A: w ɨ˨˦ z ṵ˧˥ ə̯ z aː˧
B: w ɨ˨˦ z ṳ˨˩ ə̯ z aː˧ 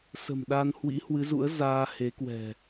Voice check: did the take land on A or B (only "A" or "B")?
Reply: A